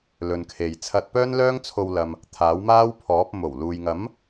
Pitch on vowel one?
low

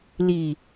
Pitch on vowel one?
low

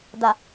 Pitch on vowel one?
low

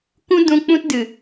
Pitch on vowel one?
high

